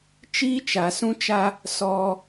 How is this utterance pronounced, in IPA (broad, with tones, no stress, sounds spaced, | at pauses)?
t͡ʃ iː˦ t͡ʃ a˨ s ũ˦ t͡ʃ a˦ | s ɔ˦